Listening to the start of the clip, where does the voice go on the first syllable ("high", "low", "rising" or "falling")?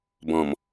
low